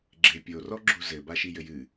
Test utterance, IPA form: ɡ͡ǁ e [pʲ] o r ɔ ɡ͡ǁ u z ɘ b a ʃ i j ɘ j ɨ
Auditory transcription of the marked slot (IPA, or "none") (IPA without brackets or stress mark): pʲ